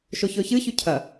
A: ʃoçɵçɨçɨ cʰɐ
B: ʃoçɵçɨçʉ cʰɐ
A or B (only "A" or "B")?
B